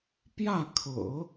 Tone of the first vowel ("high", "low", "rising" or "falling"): falling